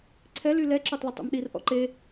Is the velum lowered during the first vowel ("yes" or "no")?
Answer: no